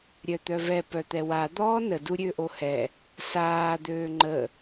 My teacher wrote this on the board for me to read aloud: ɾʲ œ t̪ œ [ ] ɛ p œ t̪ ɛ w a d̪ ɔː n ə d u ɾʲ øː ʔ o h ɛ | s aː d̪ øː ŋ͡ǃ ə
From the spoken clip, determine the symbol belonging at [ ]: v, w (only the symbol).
v